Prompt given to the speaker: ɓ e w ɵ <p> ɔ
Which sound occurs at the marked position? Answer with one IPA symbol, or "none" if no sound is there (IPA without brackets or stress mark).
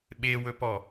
p